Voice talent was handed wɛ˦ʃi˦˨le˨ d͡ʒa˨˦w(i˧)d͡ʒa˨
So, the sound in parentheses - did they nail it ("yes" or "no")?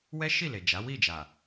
no